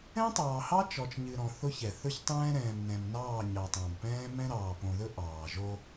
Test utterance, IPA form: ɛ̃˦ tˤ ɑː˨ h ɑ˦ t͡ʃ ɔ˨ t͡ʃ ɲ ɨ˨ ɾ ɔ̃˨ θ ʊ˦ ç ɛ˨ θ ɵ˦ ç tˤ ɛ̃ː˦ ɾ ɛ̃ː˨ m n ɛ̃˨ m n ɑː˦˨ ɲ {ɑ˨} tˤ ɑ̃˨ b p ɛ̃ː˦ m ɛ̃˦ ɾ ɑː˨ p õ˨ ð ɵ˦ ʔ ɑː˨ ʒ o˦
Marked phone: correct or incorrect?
correct